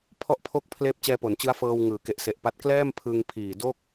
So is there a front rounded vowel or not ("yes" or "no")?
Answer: no